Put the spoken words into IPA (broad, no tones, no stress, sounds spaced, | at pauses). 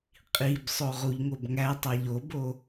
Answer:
qʼ i b sˤ o ʁ u ʎ ŋ o b ŋ æ tˤ æ ʎ o b o